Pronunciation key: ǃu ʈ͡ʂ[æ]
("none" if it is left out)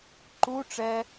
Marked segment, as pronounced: ɛ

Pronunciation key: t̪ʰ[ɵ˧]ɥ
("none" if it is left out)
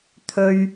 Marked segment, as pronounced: ɵ˧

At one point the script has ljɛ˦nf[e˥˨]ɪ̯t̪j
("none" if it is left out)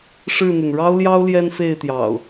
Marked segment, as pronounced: e˥˨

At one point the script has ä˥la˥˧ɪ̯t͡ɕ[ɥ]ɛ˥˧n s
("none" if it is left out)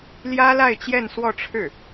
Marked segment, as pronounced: j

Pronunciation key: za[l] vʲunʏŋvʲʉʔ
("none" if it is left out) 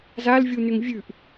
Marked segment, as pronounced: l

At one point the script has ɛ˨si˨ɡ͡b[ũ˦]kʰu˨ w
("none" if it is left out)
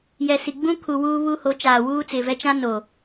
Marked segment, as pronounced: ũ˦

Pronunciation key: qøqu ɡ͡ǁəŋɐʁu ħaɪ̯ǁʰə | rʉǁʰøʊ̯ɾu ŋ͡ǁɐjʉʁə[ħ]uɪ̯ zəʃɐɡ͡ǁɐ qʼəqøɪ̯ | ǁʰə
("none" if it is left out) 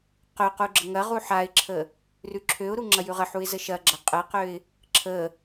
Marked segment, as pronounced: ħ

